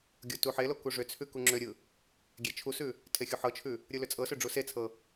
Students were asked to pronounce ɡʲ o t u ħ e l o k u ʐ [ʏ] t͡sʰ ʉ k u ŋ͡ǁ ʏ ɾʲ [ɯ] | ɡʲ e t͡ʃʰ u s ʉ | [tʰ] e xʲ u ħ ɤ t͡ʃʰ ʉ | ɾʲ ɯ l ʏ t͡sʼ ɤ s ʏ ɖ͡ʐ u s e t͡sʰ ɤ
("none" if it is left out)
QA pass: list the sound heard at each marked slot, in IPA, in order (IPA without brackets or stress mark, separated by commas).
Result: ʏ, ɯ, tʰ